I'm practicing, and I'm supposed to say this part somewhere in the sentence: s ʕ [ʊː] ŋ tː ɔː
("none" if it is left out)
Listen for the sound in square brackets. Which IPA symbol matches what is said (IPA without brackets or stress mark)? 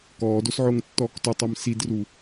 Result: ʊː